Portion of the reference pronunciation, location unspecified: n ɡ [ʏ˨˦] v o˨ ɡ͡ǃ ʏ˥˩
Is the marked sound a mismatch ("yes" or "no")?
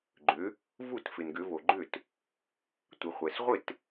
no